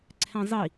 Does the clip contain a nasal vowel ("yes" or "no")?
yes